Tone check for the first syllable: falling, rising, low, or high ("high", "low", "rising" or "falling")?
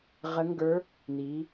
rising